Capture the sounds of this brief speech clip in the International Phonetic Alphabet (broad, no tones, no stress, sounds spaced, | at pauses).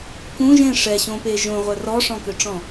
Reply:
k ũ ʒ ẽ ʂ ɛ ɕ õ p e ʒ õ ʁʷ œ r ɔ ʂ ɔ̃ k ø ʈ͡ʂ ɔ̃